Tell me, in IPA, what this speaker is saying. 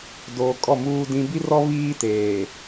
d oː˨ kʼ ɔ˦˨ m uː˦ d ĩ˦ b i˦ r ɔ˦ β iː˦ t eː˨

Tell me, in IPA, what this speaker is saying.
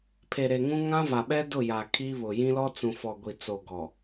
pʰ e˨ ɾ e˨ ŋ ũ˦ ŋ ã˦ v a˨ ɓ ɛ˦ d ʊ˦˨ j a˨ kʰ i˦ β ʊ˨ j ĩ˦ l ɔ˦ t͡s ũ˨ f ɔ˨ ɡʷ i˨ t͡s o˨ ɡ ɔ˨

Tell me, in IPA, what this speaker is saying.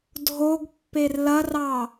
dʱ o ɡ pː e r l ɐ r ɑ

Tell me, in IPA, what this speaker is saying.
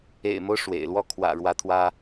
ḛ˨˩ ɪ̯ m o˦ ʊ̯ ʂ w ḛ˨˩ ɪ̯ l w ɔ˥ kʰ w ä̰˨˩ ɻ w ä˧˥ t̪ʰ w ä˥

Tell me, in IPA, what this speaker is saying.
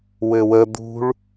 w ɘ w ə d̪ ṳ ɭ

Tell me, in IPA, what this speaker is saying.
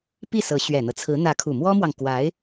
p i˥˩ s ɤ˧˥ ɕ ɥ ɛ˨˩ n̪ ɤ˦ t͡sʰ ɹ̩˧˥ n̪ ä˧˥ kʰ u˨˩ m w ɔ˥ m w ɑ˨ ŋ k w a˧˥ ɪ̯

